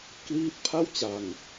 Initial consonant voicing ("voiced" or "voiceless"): voiceless